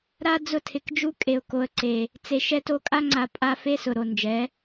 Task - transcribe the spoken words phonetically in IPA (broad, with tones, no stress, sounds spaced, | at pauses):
ɾ a˦ d͡z ʊ˧ tʰ ɪ˨ k d͡ʒ u˧ kʼ e˨ ʊ̯ k o˨ ə̯ ǀ e˨ | t͡s e˨ ʃ ɛ˧ t o˧ kʼ a˧ ŋ͡ǀ a˨ pʼ a˦ f e˦ s ʊ˨ ɾ o˨ n d͡ʒ ɛ˨˦